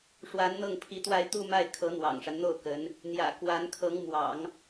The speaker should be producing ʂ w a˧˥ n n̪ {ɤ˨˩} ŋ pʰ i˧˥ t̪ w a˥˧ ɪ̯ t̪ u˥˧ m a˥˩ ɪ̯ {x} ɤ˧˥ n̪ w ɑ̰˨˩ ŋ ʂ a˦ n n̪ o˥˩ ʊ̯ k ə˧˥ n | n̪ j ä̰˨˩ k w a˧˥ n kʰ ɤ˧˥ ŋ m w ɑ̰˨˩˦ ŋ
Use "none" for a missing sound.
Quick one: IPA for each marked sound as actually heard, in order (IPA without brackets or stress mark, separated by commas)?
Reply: ɤ˥˩, kʰ